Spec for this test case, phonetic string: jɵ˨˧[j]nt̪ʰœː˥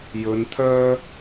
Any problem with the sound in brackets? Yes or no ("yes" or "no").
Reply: yes